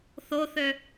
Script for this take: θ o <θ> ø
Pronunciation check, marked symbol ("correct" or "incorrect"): correct